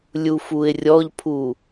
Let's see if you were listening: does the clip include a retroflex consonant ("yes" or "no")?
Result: no